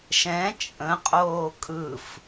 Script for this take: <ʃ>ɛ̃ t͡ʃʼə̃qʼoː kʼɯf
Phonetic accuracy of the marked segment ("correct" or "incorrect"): correct